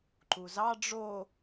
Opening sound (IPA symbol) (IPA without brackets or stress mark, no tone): ǃ